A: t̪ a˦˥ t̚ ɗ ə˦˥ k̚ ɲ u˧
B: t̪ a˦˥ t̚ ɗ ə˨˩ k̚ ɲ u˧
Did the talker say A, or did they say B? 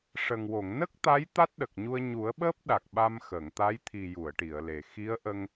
B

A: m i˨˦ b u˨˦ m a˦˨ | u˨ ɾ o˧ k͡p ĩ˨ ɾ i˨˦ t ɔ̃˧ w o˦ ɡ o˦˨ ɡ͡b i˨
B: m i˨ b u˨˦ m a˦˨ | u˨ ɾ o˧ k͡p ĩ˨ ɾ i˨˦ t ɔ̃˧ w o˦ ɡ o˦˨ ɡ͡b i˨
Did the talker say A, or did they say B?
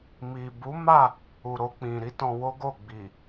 B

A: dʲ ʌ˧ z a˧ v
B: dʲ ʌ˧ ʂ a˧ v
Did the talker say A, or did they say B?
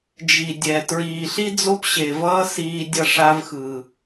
B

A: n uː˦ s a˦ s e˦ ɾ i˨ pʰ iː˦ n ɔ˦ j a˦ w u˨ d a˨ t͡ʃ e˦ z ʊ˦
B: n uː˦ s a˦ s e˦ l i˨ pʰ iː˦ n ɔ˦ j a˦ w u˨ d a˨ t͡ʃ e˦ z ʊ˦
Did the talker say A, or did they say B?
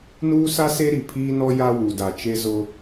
A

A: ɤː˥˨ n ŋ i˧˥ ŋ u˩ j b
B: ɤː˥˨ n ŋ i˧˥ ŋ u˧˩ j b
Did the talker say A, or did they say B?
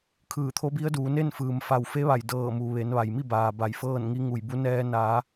B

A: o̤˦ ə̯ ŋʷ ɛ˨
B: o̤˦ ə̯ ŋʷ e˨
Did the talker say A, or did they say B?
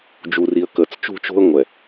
A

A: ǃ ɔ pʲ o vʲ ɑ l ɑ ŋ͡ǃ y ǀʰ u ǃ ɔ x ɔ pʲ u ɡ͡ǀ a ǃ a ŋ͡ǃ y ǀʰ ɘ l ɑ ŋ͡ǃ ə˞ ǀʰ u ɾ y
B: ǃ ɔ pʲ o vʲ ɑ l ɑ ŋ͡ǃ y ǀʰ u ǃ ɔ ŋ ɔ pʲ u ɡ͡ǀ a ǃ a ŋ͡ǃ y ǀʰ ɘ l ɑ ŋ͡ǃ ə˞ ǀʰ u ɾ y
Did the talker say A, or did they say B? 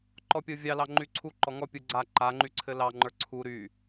B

